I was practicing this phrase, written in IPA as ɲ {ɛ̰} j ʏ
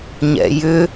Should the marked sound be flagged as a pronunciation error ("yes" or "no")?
no